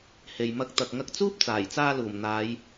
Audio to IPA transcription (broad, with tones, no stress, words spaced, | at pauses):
he˨jmɐ˧k̚ t̪ɐ˨k̚ŋɐ˧k̚ t͡suː˥p̚t͡saː˨˩jt͡saː˧luː˨˩m n̪aː˨˧j